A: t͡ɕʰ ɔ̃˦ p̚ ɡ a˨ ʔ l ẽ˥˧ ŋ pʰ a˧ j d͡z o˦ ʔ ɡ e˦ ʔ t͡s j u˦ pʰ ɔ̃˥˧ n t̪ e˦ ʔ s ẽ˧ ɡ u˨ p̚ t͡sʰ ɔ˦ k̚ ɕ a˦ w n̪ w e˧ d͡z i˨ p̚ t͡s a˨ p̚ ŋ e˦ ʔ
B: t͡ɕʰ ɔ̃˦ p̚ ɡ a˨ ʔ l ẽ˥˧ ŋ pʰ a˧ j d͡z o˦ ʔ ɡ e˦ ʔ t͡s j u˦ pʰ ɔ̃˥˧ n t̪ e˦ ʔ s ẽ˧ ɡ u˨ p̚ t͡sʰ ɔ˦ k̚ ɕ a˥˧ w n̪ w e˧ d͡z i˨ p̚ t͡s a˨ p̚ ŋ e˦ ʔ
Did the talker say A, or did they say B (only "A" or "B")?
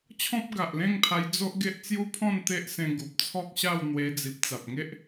B